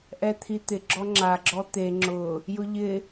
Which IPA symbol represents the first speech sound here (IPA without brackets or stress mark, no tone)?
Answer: ʔ